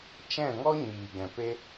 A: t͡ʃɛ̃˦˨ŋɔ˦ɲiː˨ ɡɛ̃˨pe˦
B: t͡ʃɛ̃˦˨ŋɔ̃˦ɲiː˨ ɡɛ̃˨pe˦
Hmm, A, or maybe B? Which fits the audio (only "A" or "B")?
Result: A